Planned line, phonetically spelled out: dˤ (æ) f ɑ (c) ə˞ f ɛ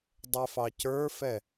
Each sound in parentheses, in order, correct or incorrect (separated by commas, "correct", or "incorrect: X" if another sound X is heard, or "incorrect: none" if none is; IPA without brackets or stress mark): incorrect: ɛ, correct